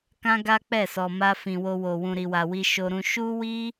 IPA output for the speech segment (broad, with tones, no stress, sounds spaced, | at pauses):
k ã˦ ɡ a˦ k͡p ɛ˦˨ s ɔ˨ m a˧ f ĩ˨ w o˧ w o˨ w ũ˨ ɾ i˨ w a˨ w i˧ ʃ o˧ ɾ ũ˧ ʃ u˦ w i˦